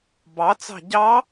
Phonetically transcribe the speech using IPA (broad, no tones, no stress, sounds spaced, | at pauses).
b ɑ t͡s ɑ̤ ɟ ɑ